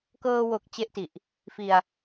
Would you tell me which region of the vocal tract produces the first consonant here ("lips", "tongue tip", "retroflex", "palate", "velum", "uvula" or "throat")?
velum